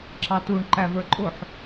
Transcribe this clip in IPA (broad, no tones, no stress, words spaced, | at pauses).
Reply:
ǁɑtuɳ ǃævə˞ǃʼʊħ